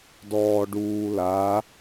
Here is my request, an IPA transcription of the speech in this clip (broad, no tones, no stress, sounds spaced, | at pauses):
d ɔː ɖ uː l a